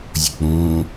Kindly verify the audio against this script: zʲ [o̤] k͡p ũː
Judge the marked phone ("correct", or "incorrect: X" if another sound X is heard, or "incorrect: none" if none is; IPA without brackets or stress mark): correct